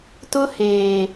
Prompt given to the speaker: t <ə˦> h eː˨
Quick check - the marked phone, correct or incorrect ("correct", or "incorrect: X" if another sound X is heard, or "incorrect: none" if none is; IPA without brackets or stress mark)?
incorrect: ʊ˦